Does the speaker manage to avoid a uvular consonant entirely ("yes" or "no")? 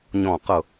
no